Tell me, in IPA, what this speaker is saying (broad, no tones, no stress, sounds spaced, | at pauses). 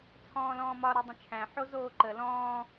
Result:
t͡sʰ ɔ̃ː l ɔ̃ː m ɒ ɾ e dˤ ə̃ t͡ʃʰ æ̃ ħ o z oː ǃ ə l ɔ̃ː